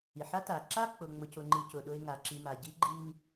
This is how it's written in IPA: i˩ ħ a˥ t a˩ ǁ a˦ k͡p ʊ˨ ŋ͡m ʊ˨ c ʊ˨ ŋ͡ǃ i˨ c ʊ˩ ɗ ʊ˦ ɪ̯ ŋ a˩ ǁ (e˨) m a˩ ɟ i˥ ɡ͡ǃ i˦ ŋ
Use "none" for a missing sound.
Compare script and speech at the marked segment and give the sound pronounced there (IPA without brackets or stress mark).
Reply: i˨